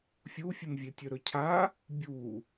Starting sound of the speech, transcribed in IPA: fʲ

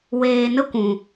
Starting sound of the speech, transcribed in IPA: w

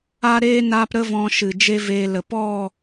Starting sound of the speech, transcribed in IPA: a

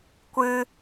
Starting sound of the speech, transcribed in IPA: kʷ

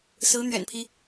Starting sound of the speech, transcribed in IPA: s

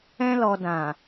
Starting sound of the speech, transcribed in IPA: ɛ̃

